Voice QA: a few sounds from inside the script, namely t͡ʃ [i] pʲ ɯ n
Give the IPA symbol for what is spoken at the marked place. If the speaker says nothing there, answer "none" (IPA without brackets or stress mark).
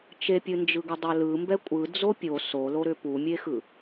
e